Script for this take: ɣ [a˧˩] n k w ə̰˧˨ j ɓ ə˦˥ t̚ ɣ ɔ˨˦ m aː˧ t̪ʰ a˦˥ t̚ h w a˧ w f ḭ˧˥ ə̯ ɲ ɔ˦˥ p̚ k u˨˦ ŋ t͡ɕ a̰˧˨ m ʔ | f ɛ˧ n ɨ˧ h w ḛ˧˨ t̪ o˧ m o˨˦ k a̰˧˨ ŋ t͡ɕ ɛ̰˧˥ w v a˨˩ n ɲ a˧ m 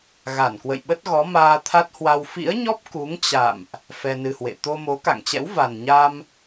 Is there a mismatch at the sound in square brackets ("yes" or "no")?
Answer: no